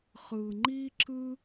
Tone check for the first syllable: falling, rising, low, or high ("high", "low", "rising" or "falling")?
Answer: low